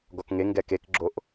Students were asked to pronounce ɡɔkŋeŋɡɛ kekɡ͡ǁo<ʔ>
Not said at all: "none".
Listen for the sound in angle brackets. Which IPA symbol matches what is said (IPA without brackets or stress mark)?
ʔ